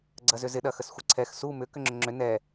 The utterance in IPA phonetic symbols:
ɡ͡ǀ ɐ z ʏ z ɪ ɗ ɐ x ə s xʷ ɪ ǀʰ ɛ x s u m ʏ k ʏ ŋ͡ǁ ʏ ŋ͡ǁ ʏ n ɛ

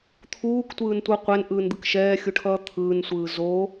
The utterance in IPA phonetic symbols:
t̪ʰ uː k tʷ ɯː n tʷ ʌ qʷ ɛ n ʔ ɯː n d̪ ɯ k ʃ ɛː xʲ u ʈʰ ʌː t̪ʰ ɯː n sʷ ɯː z o

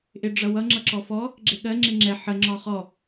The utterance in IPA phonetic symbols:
ʔ ɪ ɖ͡ʐ ʌ w ʌ ŋ͡ǁ ʌ ǁ ɔ f ɔ | ɡ͡ǁ ɪ ɠ ɜ ŋ͡ǁ ɪ ŋ͡ǁ ɛ ħ ə ŋ͡ǁ ɒ χ ɔ

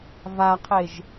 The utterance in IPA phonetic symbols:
v a qʰ e ʒ

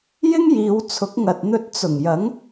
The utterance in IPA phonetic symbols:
j ɪ˥ ŋ j iː˨˧ w t͡sʰ ʊ˨˥ k̚ ŋ ɐ˨ t̚ n̪ ɵ˨ t̚ t͡s ʊ˨˩ ŋ j ɐ˨˥ ŋ

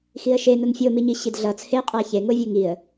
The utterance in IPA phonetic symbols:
x i ə̯ ʃ e n o n fʲ o m i ɲ i ɕ i d ɮ ʌ t͡sʰ e qʼ a ç e ŋ o vʲ u ŋ i ə̯

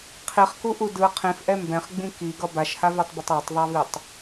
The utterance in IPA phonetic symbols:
qʰ i χ k u ʔ u d ɯ qʰ ĩ f ʔ ɛ m b ɛ̃ χ ɡ͡b ĩ k i ɡ ʌ b a ʃ h a v e tˤ b ʌ tˤ a tˤ ðˤ a v i tˤ

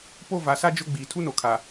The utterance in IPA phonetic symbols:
p o˦˨ v a˨ s a˦ d͡ʒ ʊ˦ ɡ͡b iː˨ tʰ u˦ n o˨ kʰ a˨

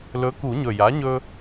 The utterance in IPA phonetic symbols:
l ɵ˩˥ k u˨˩˦ ɲ ɵ˨˩ j a˩˥ ɲ ɵ˧

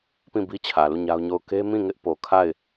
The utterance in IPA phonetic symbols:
p ĩ˦˨ b i˦ t͡ɕʰ ä˨ l u˦˨ ɲ a˦ ʊ̯ ɲ o˦˨ ʊ̯ k e˦ m ĩ˦˨ ŋ ɪ˦ ʔ p o˨ kʰ a˦˨ ɪ̯

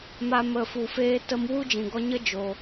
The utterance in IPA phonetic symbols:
m a˧ m ə˨ f u˨ f eː˧ t ə˧ m w u˦ d͡ʒ ĩ˨ ɡ ɔ˧ ɲ ə˦ d͡ʒ oː˧

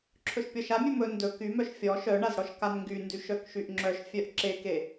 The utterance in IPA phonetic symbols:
ǁʰ ɵ ʃ pʲ ɔ ʃ a mʲ ɵ m ɵ n d ɵ k y m œ ʃ fʲ ɔ ʃ œ ɳ a z ɽ ɔ ʃ k a n ŋ ɡ y n d y ʃ œ k ʃ y ʔ ŋ͡ǁ œ ʃ fʲ œ ʔ ǁ e k e

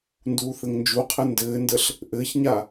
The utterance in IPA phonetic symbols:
n d uː θ ɘ ŋ n d͡ʒ u qʰ ɘ n d ɘː n d ə ɬ | ʔ ɘ ç ɲ a

